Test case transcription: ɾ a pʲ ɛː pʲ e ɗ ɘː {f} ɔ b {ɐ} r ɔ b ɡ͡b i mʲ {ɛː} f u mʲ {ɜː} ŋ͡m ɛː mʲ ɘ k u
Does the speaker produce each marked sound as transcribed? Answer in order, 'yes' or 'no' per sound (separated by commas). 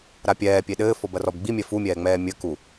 yes, yes, no, no